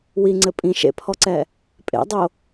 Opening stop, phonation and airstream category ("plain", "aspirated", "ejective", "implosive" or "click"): click